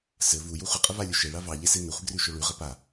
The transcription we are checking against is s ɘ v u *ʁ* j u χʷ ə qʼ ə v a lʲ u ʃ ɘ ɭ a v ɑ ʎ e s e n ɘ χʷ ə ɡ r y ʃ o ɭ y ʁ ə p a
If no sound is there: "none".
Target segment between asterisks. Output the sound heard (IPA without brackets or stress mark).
none